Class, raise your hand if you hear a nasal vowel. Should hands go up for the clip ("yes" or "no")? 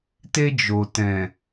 yes